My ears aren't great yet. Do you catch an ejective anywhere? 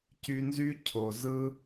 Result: no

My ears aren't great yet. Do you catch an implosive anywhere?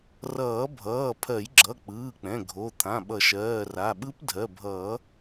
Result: yes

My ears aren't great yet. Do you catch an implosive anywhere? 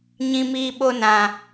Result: yes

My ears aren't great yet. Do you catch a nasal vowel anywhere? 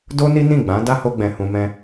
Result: yes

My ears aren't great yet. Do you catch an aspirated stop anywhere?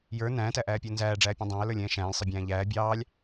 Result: no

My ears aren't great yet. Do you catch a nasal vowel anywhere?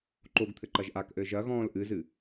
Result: yes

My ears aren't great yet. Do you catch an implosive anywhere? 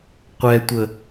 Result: no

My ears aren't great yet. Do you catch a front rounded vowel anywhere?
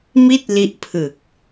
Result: no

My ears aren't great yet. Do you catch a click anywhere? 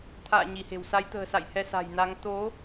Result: no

